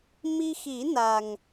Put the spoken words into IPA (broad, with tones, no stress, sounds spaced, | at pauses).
m i˧ x i˨˩˦ n a˨˩ ŋ